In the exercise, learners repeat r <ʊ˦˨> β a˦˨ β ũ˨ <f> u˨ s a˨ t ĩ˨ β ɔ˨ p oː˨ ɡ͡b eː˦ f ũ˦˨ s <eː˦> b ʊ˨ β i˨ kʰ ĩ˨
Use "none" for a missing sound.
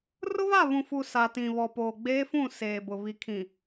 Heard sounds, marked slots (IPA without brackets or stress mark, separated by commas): ʊ˦, f, eː˨